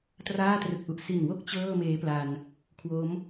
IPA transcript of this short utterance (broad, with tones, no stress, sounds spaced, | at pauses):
t r aː˥˩ t r ɯ˨˩ k̚ ʔ u˨˩ ʔ s i˨˩ n w o˥˩ k̚ t͡ɕ ɤː˥˩ m eː˦˥ p l a˧ n | kʰ w o˦˥ m